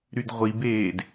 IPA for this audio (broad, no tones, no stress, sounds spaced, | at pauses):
ɾ y d ʁʷ i b eː d